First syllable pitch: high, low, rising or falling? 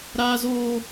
high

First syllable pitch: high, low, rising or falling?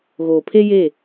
low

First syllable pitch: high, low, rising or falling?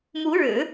rising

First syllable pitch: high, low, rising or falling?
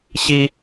high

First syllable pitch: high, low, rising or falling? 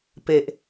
low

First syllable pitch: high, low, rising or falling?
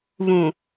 low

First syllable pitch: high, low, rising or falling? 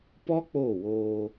high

